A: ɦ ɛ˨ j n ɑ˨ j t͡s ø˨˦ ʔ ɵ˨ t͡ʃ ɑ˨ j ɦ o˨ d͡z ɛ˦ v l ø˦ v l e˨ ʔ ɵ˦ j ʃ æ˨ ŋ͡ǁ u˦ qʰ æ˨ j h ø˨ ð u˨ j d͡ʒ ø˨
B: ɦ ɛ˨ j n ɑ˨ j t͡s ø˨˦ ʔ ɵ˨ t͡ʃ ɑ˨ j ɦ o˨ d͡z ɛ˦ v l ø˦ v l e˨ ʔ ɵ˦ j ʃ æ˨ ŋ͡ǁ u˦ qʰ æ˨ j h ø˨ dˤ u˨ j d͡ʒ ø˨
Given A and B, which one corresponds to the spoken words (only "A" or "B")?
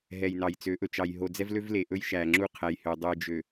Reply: B